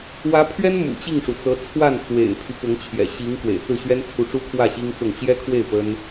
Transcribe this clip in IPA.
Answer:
w ä˧˥ pʰ ɥ ɛ˥ n m ṵ˨˩ t͡ɕ i˥˩ ŋ ʂ u˩ t͡s ɤ˧˥ t͡sʰ w a˥˩ n t͡s w ḛ˨˩ ɪ̯ pʰ y˦ p ʊ˧˥ ŋ t͡ɕʰ j ɛ̰˨˩ ɕ i˧˥ ŋ k w ḛ˨˩ ɪ̯ t͡s ɹ̩˥˩ ɕ ɥ ɛ˥ n t͡sʰ u˧˥ ʈ͡ʂ u˥ kʰ w ä˥˩ ɕ i˥ ŋ t͡s ʊ˥˩ ŋ t͡ɕ j ɛ˥ kʰ w e˥˩ ɪ̯ p ə˥ n

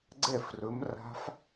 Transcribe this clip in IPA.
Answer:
ɡ͡ǀ ɛ˥˩ f r ɵ˨˥ m r a̤˦˥ f

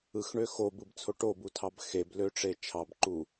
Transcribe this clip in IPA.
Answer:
ɯ x ɳ ø x o b ɯ b t͡sʰ o ʈ o b u tʰ ɑ b x e b l ø ʈ͡ʂ e t͡ʃʰ ɑ b ǃ u

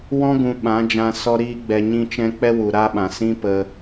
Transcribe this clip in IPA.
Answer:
w ɔ̃˦ ɡ ũ˧ ɓ ã˨˦ d͡ʒ ã˧ s ɔ˧ ɾ iː˦ ɡ͡b ɛ˧ ɲ ĩ˦ t͡ʃ ɛ̃˦ k͡p ɛ˦ w u˨ ɾ a˦ ɓ ã˨ s ĩ˦ p ə˧

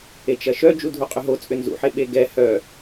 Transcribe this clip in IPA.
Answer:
e t͡ʃ ɐ ʃ œ d͡ʒ u dʱ u qʼ ʏ ɦ o t͡sʼ ʏ n z ṵ ħ e ɓ e ɡ ɛ h œ

